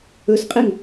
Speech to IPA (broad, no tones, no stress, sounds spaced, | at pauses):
ɵ s qʼ e ŋ